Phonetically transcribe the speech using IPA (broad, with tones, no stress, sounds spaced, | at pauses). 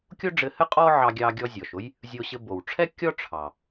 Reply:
kʲ o˥ ɖ͡ʐ ɘ˧ h ɘ˥ qʼ ɔ˥ ʕ ɑ˧ ɡʲ ɑ˧ ɡʲ ɔ˧ zʲ ɔ˩ ʃ ʊ˥ j | zʲ o˧ ɕ ɘ˧ b o˩ w ʈ͡ʂʰ ɛ˥ kʲ ɔ˥ ʈ͡ʂʰ ɑ˩